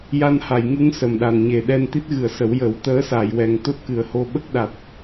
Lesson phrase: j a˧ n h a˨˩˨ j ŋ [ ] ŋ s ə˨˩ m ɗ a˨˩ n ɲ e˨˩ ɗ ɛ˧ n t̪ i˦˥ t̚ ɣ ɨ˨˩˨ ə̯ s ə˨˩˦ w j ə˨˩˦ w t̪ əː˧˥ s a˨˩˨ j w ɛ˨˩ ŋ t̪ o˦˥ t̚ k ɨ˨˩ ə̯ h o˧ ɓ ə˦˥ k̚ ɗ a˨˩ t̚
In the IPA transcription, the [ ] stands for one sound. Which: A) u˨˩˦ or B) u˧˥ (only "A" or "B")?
B